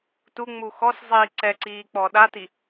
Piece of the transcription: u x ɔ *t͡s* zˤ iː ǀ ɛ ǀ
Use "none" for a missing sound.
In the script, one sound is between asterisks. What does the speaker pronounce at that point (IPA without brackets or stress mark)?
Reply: s